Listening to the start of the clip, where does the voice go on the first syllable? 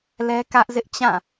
high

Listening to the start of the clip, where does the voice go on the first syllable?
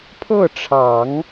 falling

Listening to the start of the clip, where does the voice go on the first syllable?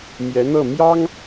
rising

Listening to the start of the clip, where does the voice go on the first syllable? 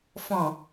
low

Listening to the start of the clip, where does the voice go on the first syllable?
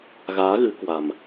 rising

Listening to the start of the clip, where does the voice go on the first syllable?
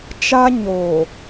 high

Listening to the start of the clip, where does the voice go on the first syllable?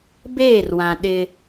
falling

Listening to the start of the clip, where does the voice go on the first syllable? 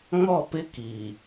falling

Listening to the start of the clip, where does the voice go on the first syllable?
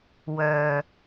low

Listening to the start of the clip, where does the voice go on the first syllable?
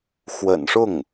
low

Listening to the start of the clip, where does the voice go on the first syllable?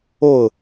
falling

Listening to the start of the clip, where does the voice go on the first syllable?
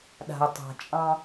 low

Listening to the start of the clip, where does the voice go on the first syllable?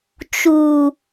low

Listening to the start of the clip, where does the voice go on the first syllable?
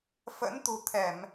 rising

